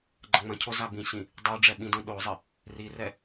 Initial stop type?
click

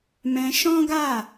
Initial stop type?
plain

